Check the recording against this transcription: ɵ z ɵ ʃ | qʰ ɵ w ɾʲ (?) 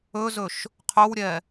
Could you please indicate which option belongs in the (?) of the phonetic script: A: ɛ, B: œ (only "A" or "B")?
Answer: A